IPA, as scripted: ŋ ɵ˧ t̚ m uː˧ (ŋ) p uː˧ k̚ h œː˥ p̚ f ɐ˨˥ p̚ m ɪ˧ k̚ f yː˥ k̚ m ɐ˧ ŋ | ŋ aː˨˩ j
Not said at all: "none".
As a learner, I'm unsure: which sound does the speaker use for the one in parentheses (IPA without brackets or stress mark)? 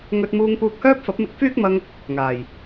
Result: ŋ